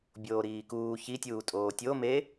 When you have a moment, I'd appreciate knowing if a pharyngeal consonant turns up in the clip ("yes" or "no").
no